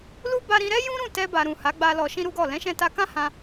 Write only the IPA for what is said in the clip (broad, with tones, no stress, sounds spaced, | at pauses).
l u˦ b a˧ ɾ ĩ˧ ɾ ɛ˦ j ũ˦ ɾ ũ˦˨ t ɛ˧ b a˨ ɾ ũ˨ h a˨˦ ɡ͡b a˧ l ɔ˧ ʃ ĩ˦ ɾ u˦ ɡ ɔ˦˨ l ɛ̃˨˦ ʃ ɛ̃˧ t a˧ k ã˦ h ã˧